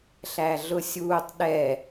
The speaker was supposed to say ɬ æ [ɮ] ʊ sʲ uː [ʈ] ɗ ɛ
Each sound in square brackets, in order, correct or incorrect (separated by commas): correct, incorrect